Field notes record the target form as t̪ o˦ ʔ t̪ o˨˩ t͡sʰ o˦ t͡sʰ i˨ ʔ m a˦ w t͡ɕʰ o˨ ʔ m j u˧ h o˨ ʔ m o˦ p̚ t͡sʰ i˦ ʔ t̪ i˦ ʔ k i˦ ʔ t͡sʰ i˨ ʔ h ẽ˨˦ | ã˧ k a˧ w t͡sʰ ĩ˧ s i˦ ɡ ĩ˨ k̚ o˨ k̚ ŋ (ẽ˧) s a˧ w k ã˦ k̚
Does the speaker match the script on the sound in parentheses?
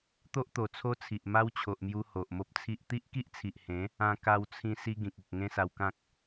no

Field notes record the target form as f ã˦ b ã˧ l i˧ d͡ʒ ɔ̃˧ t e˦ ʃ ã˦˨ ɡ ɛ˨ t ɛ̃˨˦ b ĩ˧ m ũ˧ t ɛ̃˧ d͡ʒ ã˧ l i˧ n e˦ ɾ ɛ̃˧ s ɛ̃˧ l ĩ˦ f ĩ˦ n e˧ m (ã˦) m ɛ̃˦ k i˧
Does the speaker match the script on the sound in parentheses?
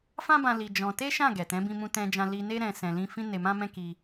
yes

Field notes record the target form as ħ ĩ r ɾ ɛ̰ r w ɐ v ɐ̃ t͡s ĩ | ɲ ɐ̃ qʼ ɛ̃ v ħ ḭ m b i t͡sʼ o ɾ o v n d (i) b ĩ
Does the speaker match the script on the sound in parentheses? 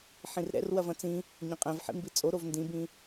no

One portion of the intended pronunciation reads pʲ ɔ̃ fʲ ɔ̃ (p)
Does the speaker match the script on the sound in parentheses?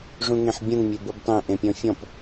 yes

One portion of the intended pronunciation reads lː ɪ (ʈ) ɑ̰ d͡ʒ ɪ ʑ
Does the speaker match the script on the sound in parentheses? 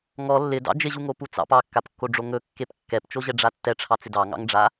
no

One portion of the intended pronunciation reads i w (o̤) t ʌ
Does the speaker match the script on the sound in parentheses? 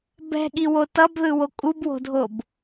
no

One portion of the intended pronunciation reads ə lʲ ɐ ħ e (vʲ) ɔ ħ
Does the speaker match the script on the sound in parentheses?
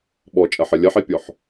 no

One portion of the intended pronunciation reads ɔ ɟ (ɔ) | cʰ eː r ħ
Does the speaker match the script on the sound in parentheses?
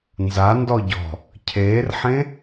no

